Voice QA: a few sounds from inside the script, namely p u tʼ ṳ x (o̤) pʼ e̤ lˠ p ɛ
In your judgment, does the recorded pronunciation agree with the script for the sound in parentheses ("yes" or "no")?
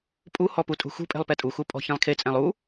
no